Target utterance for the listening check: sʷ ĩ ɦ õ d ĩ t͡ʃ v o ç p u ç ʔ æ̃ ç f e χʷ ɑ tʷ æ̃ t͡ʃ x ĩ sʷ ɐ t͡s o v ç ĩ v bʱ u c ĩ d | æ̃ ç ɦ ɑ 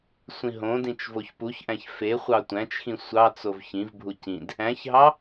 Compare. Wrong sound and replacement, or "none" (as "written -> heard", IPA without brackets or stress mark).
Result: ɐ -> ɑ